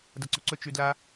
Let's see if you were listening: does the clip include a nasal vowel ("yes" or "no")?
no